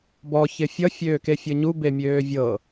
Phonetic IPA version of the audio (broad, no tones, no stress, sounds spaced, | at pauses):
b ɔ ç ɪ fʲ ʌ fʲ øː k e fʲ ɤ ɲ u b e mʲ øː vʲ ɤ